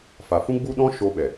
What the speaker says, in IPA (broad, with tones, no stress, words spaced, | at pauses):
fa˨fũ˦ ɡ͡bu˦ɗɔ̃˦ ʃo˧ɓɛ˨